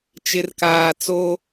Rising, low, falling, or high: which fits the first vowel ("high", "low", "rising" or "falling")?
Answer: low